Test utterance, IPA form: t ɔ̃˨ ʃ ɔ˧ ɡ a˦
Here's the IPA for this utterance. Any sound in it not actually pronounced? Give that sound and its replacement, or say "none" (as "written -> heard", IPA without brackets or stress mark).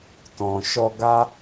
none